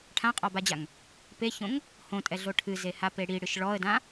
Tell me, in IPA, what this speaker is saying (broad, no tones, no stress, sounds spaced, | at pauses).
ʈʰ ã qʼ ɔ b a d͡ʑ a ŋ | p e ç õ ŋ | h õ tʼ ɛ ɮ o ʈʰ ɨ z e h a p e ɽ i ɽ ɨ ʃ ɭ ɔ ə̯ d ã